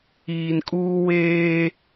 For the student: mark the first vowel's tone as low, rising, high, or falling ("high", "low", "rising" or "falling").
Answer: low